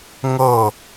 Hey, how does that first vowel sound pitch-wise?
falling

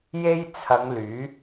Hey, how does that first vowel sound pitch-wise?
high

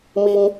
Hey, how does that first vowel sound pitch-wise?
high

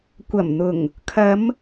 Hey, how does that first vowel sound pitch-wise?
low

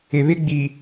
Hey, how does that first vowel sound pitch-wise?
low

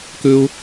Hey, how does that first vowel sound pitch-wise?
high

